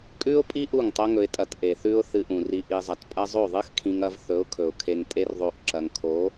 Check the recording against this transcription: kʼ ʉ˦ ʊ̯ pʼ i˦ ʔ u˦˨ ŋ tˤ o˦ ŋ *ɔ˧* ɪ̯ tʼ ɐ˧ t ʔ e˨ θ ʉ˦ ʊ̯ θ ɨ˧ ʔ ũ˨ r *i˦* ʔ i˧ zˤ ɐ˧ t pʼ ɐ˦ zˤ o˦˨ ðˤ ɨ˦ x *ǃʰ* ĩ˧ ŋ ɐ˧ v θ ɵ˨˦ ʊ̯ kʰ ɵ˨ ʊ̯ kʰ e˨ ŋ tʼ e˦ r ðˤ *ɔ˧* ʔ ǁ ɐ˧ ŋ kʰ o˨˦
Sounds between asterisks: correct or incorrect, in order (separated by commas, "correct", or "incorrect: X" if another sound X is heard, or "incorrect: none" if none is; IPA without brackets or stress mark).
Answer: incorrect: ɵ˧, incorrect: i˧, incorrect: kʰ, incorrect: o˧